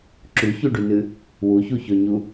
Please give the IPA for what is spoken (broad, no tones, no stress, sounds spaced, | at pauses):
ǁ ʉ ç ʉ ɖ ʉ n ɨ | w u ç u ç ɵ ɲ u